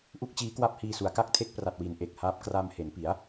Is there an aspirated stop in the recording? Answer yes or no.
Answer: yes